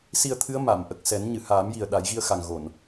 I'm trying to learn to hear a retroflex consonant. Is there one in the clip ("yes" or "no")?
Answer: no